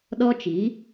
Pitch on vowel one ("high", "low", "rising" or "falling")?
high